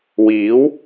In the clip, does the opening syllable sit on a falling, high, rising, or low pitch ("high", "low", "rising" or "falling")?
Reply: rising